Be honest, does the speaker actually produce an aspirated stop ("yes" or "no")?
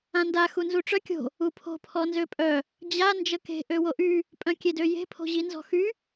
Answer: yes